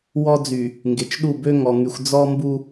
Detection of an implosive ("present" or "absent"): present